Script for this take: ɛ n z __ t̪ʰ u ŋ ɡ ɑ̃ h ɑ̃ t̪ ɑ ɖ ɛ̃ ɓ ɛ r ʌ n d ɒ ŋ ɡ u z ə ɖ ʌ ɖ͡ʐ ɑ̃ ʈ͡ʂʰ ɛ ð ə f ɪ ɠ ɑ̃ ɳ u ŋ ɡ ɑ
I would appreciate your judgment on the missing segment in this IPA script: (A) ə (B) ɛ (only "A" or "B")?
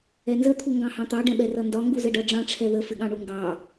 A